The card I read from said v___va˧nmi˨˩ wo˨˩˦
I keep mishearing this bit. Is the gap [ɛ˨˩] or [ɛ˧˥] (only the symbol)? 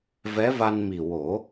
ɛ˧˥